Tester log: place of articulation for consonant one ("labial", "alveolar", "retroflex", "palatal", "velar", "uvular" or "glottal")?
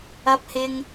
labial